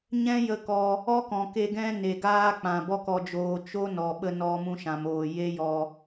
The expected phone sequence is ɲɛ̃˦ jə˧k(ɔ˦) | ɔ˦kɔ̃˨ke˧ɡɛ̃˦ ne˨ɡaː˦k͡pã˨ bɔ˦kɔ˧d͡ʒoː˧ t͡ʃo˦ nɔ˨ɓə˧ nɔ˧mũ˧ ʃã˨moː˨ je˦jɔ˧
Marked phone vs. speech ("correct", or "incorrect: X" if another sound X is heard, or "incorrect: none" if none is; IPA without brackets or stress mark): incorrect: ɔ˧